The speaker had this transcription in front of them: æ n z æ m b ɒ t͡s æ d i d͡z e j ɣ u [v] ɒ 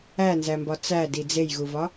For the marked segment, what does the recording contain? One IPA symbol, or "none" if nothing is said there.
v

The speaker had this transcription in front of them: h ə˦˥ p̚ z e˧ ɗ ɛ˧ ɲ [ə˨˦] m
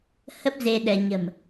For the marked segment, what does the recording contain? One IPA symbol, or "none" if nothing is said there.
ə̤˨˩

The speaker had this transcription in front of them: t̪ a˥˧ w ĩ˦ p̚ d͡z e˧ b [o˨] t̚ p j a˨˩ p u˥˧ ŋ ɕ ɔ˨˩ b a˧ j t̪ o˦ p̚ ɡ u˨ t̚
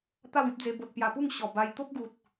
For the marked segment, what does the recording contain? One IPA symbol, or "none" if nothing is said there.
o˨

